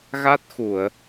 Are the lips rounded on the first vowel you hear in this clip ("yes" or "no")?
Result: no